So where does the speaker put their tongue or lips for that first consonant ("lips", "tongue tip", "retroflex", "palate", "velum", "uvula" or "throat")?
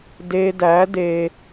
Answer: tongue tip